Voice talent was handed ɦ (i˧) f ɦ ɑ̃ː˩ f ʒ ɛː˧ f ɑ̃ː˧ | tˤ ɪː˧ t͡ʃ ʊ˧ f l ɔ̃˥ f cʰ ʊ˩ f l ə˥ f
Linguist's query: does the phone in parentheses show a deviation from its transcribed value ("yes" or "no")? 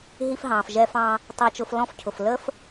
no